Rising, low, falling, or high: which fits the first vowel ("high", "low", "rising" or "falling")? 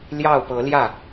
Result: falling